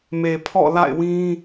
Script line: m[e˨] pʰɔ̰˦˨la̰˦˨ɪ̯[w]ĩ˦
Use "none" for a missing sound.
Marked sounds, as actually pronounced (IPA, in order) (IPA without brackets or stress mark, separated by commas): e˨, w